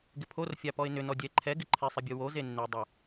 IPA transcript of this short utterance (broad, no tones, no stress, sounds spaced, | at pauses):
ɡ ɪ pʰ o r fʲ a p ɔ ɪ̯ n ʏ n ɔ dʲ ɛ ǃʰ ɛ ɡ ɪ ǃʰ ɪ sˤ ɪ bʲ o w o z e nː e dˤ ə